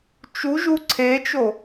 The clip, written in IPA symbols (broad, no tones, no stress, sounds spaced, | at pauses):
t͡ʃ u ʒ u ǀʰ e t͡ʃ o